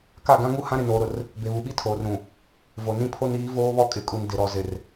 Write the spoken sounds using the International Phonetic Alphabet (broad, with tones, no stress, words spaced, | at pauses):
ka˦˨ɡã˦ŋu˦ hã˦ɾɪ˨noː˨ɾʊ˨r | be˨βu˨ɓi˦ tʰoː˨rɾũ˨ | vo˨nĩ˦pʰo˦n iː˨˦ voː˦βɔ˦kʼɪ˨kʼu˨n dɪ˨ɾɔ˨ zɪ˨r